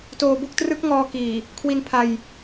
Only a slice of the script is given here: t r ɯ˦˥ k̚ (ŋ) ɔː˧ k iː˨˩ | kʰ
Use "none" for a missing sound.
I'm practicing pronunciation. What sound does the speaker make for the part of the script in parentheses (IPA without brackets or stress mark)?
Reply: ŋ